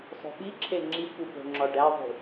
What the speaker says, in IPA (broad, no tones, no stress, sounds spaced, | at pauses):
sˤ o̤ ɓ i ǁʰ e ŋ͡ǁ i kʷ i p o̤ ŋ͡ǁ ɒ ɖ æ ðˤ ṳ